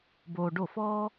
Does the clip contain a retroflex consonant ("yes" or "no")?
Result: yes